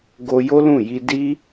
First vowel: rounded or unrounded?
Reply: rounded